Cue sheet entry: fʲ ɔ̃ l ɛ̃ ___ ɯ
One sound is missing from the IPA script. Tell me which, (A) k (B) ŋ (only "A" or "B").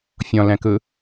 A